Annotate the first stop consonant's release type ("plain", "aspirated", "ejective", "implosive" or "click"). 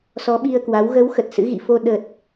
implosive